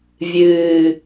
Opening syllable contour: low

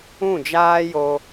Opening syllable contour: falling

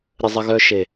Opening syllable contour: low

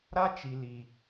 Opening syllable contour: high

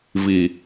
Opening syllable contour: low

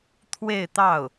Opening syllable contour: falling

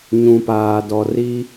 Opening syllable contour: low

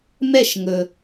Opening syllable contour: falling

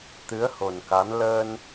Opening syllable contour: rising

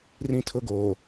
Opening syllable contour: high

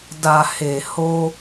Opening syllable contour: low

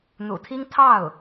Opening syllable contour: low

